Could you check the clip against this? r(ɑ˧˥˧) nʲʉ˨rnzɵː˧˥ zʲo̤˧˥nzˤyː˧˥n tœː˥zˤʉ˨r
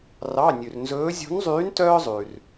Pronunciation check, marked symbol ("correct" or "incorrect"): correct